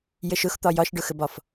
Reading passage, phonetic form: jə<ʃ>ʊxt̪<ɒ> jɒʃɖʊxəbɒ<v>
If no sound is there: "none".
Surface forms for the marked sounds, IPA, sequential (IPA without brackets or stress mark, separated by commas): ʃ, ɒ, f